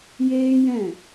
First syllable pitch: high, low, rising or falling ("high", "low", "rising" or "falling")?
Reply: high